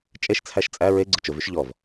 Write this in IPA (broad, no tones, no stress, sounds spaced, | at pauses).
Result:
t͡ʃʼ e ʃ t͡sʰ æ ʃ t͡sʼ æ ɹ e ɡ͡ǀ ʊ t͡ʃ ʊ v y ʃ ʎ ɔ v